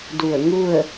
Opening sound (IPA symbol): d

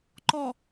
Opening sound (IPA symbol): ǃ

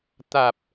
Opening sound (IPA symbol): t̪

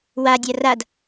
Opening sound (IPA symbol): w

